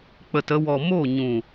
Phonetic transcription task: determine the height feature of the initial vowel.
mid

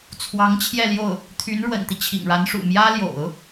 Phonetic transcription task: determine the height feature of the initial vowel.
low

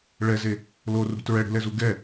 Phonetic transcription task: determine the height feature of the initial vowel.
mid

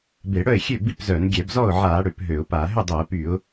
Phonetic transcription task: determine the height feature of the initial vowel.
mid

